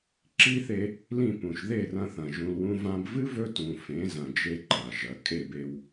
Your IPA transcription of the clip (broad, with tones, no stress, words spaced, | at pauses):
ǁi˦θe˧ | lĩ˦˨pũ˨ʃ ðe˦˨rɐ̃˧θɐ̃˨ ʒũ˧lwũ˦ vã˧bvɨ˦ vɵ˦tũ˨fẽ˨˦ zɐ̃˧d͡ʒe˦ǃa˨ʒɐ˨˦ kʼe˦˨be˧w